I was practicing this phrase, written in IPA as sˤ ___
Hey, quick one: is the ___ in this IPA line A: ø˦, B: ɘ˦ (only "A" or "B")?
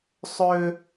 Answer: A